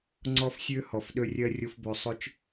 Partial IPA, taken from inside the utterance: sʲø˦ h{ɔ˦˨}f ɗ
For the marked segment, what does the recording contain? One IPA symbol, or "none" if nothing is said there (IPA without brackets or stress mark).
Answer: ɔ˨